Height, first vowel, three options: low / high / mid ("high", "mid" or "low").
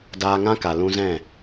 low